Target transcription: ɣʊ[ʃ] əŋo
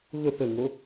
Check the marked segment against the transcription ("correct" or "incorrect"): incorrect